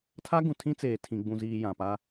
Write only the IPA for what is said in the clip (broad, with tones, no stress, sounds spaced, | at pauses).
tʰ a˦ ɡ ũ˨ tʰ ĩ˦ t͡s eː˨ tʰ ĩ˨ ɡ͡b ũ˨ z iː˨ j ã˨ p a˦